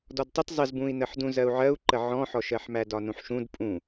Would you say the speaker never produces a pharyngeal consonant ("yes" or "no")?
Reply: no